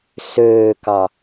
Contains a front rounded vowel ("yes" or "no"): yes